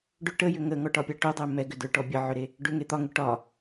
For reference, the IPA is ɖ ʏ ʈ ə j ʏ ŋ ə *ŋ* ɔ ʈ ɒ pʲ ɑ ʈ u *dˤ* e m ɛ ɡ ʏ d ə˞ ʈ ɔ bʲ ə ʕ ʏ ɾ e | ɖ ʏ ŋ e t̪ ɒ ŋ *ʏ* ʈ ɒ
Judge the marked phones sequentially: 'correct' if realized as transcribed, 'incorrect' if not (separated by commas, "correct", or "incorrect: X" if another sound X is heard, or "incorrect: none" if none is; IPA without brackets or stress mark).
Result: correct, correct, correct